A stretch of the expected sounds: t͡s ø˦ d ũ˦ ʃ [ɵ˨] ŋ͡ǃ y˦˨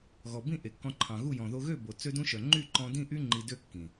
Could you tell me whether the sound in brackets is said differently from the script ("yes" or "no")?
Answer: yes